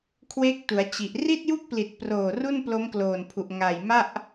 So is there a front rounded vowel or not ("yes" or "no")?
no